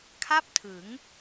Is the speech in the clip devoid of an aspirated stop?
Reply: no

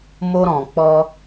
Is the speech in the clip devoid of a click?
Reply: yes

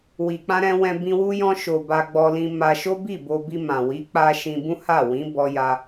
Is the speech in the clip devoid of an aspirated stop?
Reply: yes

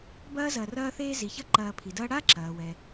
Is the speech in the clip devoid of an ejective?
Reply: yes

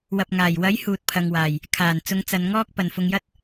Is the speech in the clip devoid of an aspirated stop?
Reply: no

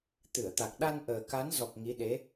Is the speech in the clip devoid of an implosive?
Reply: no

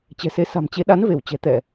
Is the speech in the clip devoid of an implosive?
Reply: no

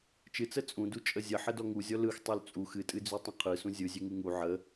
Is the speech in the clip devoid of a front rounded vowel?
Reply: no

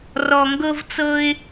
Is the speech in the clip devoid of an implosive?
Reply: yes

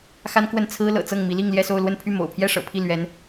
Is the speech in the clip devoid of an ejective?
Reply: yes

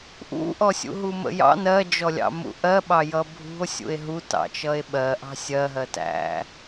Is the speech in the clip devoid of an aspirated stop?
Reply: yes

